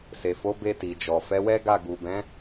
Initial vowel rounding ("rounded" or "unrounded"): unrounded